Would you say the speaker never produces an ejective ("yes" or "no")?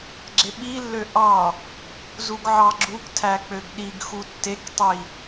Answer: yes